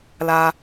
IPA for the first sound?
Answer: l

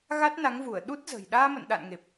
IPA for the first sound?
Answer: ɣ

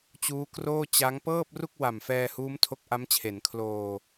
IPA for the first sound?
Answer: t͡ɕ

